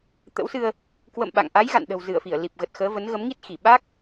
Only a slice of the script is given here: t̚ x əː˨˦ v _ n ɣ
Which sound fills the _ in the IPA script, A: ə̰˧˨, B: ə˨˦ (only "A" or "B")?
B